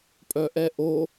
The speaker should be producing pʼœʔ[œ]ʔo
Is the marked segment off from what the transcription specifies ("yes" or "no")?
yes